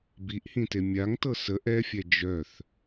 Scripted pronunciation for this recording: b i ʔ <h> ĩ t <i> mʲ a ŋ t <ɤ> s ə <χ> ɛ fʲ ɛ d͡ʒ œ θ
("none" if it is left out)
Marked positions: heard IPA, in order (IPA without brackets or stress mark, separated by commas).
h, e, ɤ, ʔ